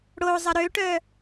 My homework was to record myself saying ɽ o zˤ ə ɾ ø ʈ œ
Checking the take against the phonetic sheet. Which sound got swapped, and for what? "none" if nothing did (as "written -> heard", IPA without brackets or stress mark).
none